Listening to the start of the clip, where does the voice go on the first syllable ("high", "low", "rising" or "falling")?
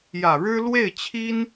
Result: low